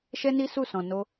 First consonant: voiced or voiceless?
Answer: voiceless